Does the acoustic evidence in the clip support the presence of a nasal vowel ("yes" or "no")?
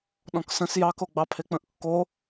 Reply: yes